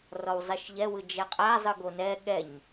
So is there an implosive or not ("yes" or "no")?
yes